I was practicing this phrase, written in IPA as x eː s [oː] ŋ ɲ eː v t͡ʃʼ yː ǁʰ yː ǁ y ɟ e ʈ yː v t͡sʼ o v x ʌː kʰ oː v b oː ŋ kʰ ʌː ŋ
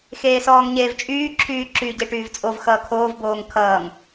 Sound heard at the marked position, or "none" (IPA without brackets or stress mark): ɔː